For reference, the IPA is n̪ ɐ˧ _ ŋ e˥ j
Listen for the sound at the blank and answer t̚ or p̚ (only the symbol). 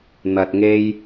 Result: t̚